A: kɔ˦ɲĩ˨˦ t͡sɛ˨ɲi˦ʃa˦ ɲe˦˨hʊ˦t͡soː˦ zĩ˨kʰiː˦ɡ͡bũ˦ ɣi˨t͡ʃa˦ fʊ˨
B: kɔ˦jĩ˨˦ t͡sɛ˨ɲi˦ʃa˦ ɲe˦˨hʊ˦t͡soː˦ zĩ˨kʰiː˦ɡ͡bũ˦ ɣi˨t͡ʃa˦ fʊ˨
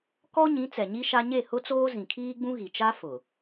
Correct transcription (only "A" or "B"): A